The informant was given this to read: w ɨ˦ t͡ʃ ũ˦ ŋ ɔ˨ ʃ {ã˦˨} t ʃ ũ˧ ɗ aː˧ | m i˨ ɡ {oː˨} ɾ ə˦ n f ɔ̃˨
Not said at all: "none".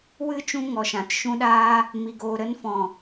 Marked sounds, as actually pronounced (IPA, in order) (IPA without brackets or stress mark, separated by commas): ã˨, oː˨